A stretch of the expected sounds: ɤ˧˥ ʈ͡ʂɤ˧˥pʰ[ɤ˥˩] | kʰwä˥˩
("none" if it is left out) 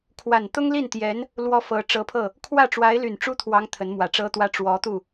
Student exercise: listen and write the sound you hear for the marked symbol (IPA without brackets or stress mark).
ɤ˥˩